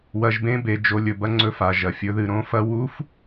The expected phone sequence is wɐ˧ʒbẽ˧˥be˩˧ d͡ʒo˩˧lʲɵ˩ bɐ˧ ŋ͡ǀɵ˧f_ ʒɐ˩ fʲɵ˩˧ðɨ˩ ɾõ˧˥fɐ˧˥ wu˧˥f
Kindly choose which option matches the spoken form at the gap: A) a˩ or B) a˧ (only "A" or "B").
A